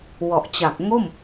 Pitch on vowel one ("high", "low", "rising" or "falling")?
low